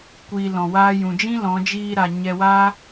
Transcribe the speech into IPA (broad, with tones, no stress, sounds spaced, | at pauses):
kʷ iː˧ l ɔ̃˨ w aː˦ j ũ˨ d͡ʒ ĩ˦ l ɔ̃˨˦ d͡ʒ iː˧ ɾ a˨ ɲ ɛ˧ w a˦